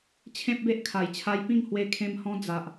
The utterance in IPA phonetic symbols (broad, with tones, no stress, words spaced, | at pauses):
t͡ɕʰẽ˦p̚be˦ʔ kʰa˨˩jt͡ɕʰa˧jpĩ˥˧ŋ hwe˧kʰẽ˧m hɔ̃˦ d͡za˨ʔ